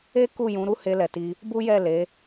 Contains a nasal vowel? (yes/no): yes